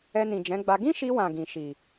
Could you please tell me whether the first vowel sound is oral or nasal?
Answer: oral